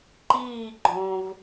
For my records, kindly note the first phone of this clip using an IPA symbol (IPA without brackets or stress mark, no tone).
ǃ